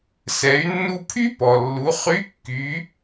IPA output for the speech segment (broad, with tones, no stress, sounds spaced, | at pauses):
s ɛ˩˧ y̯ nː u˧ pʰ y˥ p ɔ˩ lː u˩˧ χ y˧˥ kː y˩˧